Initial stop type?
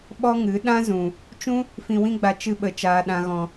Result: implosive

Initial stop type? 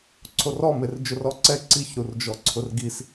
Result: click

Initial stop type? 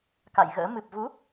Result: plain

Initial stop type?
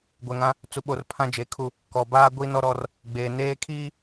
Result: plain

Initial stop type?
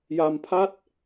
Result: aspirated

